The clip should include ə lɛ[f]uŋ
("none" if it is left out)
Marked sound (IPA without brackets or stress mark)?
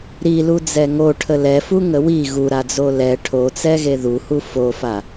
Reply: f